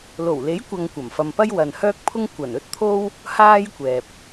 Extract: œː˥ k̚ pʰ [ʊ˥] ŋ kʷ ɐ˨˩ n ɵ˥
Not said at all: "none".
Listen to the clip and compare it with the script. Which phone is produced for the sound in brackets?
ʊ˥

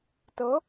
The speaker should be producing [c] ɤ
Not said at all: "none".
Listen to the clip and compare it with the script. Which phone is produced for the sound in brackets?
t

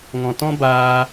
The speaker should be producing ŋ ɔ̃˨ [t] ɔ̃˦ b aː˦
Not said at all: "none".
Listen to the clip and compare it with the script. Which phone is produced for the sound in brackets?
t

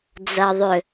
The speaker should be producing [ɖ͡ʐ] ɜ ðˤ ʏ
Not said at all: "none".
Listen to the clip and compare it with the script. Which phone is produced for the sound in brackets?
d͡z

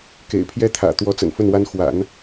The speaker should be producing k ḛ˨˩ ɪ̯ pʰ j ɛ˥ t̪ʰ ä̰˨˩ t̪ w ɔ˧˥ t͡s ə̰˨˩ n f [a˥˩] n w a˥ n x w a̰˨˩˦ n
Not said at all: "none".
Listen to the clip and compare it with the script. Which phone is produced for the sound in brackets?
ə˥˩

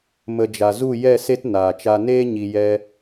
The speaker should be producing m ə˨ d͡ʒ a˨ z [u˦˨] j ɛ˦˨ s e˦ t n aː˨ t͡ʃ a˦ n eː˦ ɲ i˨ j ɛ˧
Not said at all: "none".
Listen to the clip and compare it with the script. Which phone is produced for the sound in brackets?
u˦˨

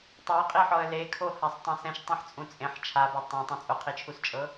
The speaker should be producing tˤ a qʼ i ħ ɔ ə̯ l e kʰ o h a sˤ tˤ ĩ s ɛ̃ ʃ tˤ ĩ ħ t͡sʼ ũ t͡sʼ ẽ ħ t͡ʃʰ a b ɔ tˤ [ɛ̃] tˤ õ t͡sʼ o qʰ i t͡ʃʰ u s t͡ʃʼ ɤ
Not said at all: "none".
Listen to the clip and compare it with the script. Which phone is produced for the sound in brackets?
ẽ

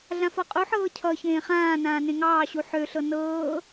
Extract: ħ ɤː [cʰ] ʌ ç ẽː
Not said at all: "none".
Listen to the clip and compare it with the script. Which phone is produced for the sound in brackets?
cʰ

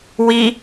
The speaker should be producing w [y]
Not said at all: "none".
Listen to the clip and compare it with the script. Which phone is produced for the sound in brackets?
i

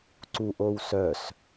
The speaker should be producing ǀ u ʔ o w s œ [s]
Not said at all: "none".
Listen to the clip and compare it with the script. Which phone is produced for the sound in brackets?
s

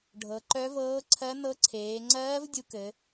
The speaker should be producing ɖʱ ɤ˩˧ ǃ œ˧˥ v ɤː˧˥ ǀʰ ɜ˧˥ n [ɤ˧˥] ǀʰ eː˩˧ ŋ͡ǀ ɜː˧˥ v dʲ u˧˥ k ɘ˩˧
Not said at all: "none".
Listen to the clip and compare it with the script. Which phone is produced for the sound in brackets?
ɤ˧˥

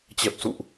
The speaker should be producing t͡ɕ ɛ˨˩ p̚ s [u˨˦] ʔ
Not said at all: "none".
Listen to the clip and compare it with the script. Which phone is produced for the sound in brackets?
ṵ˧˨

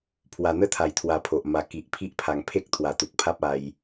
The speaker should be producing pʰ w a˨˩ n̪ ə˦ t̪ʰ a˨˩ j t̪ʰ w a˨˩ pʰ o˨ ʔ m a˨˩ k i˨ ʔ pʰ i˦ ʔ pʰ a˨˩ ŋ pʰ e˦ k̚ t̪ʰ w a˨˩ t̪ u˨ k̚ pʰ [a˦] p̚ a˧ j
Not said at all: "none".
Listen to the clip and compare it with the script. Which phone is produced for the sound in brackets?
a˦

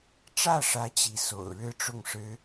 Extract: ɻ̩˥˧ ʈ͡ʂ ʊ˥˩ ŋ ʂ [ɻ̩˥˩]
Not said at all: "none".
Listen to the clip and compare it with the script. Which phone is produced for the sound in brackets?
ɻ̩˥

